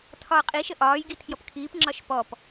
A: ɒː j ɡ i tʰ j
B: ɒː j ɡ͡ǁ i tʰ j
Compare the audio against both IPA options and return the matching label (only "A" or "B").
A